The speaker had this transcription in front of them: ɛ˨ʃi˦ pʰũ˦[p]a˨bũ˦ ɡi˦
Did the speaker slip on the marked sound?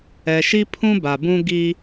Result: yes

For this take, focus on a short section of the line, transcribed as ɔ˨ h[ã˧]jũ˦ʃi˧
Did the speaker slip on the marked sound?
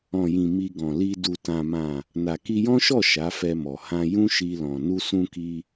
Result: no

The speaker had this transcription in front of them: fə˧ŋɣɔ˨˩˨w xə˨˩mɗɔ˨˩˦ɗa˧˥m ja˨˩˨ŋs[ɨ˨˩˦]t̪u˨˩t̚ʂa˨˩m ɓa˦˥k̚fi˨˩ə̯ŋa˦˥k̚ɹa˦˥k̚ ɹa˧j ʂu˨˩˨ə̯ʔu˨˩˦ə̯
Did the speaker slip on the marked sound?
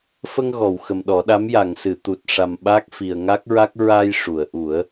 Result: yes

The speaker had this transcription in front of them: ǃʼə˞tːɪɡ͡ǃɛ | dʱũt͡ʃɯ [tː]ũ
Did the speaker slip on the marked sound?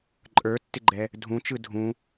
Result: yes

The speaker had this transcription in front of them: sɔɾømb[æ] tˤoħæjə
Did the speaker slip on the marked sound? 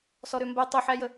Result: yes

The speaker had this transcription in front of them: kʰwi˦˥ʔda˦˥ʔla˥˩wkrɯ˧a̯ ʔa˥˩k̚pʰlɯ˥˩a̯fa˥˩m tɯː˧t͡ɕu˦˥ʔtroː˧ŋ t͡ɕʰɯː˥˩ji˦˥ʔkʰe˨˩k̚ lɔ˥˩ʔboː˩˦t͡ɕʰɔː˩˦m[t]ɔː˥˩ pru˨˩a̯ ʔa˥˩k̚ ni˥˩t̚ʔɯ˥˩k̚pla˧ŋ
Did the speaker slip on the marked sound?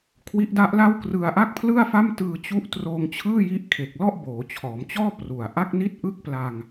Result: yes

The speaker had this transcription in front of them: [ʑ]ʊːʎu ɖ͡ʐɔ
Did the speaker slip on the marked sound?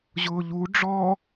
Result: no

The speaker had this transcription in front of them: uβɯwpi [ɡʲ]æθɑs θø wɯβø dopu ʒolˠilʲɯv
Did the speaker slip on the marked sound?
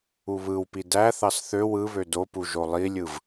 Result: yes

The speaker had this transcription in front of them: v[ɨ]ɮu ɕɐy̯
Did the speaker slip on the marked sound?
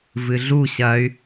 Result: no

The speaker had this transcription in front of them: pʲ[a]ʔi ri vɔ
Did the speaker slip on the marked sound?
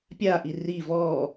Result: no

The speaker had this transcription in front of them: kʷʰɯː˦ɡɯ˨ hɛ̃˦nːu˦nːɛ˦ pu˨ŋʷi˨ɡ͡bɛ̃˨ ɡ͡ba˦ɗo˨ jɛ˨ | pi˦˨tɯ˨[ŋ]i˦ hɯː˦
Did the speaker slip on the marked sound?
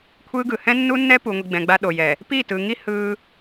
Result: no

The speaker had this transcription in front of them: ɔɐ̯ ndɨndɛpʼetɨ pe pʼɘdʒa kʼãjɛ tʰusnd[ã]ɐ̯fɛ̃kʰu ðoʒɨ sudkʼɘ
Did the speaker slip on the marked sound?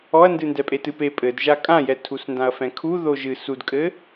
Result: no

